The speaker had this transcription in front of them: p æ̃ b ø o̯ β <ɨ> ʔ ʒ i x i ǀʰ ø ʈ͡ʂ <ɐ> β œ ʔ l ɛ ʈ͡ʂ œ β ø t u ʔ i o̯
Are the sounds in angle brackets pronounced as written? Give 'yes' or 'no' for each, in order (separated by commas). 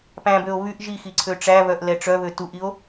no, no